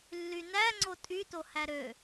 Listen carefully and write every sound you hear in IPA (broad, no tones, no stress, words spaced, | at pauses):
lːynæ ŋ͡ǀotʼyto hæɾø